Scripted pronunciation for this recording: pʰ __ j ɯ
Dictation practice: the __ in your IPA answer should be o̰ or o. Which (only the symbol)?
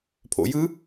o̰